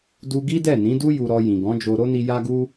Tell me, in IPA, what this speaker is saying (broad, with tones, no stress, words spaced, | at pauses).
du˦ ɡi˦dɛ˦˨nĩ˨˦du˦ ju˧ɾɔ˧ jĩ˨ ɡɔ̃˨˦ d͡ʒo˦ ɾo˦ni˧ ja˦ɡu˦